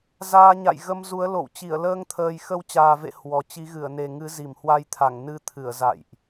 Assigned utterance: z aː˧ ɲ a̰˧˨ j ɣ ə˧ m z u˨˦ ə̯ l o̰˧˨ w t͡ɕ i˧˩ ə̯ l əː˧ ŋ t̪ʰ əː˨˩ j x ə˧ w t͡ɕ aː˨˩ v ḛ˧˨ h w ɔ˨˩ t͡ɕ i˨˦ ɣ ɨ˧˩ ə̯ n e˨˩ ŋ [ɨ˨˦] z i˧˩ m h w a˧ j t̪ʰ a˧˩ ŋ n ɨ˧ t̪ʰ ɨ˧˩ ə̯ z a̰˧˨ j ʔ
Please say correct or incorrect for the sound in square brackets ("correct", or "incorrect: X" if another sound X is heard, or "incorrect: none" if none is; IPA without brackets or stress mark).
correct